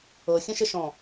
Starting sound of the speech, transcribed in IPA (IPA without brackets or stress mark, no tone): ɤ